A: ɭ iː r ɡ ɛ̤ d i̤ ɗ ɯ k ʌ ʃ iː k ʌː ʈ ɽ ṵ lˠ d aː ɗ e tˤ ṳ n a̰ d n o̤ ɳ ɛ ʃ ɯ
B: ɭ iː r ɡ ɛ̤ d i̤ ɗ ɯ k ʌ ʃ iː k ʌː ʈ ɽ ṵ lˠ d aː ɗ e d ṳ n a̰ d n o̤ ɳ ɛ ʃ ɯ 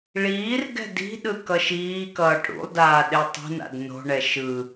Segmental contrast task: A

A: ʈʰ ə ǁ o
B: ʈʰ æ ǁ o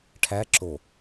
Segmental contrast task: B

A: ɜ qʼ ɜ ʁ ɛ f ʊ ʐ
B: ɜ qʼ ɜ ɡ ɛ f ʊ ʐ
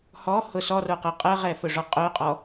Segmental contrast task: A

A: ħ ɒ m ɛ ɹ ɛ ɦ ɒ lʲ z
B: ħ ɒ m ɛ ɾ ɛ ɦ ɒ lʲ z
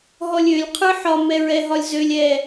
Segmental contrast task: A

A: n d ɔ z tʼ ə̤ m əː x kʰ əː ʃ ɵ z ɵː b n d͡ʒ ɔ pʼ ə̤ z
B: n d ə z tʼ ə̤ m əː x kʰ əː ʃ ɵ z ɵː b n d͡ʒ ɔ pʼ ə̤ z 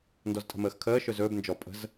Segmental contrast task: A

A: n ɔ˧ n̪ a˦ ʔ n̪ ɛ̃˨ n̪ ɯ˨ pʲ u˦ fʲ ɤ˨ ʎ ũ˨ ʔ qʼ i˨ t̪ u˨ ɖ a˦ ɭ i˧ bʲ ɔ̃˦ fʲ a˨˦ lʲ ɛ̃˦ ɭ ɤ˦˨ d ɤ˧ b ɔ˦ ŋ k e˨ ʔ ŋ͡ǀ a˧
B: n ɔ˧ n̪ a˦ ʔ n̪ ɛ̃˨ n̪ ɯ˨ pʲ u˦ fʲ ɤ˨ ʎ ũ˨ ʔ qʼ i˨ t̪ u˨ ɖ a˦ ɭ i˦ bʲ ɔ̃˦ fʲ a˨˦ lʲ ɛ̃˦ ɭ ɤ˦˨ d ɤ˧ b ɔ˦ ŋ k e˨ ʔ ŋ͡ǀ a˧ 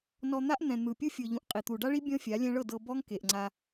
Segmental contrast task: B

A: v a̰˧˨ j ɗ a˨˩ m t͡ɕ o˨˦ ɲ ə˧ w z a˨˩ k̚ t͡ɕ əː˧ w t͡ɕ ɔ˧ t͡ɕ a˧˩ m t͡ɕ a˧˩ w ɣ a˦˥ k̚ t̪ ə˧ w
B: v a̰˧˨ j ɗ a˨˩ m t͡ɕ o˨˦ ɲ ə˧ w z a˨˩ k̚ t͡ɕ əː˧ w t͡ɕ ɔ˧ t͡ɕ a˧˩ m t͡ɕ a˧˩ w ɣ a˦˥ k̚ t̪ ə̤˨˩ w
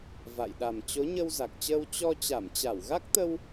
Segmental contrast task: A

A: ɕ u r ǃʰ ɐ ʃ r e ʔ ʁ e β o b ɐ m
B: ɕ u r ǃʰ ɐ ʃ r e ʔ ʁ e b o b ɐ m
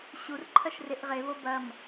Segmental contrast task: A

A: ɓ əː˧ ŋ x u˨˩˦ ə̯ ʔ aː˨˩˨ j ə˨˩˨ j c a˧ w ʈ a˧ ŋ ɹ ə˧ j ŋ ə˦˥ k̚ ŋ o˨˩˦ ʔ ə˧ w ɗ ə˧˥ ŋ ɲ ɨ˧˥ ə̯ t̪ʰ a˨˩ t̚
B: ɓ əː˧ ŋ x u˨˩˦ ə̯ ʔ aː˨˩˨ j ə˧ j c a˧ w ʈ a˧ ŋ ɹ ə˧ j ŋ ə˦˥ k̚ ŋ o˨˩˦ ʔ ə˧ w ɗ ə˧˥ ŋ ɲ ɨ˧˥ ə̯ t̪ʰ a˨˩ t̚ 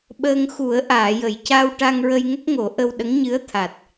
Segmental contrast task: A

